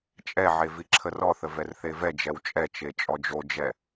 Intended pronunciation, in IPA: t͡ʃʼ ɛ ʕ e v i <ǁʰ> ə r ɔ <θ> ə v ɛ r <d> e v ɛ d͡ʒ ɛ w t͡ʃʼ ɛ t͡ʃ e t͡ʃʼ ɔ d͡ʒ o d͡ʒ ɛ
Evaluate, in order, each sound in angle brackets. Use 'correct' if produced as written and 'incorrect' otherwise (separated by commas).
correct, correct, incorrect